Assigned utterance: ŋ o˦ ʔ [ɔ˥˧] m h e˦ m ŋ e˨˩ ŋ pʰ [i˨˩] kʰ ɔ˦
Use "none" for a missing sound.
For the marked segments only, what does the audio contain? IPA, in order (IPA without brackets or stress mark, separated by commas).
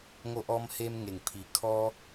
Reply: ɔ˦, i˨˩